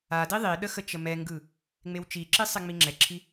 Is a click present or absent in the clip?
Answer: present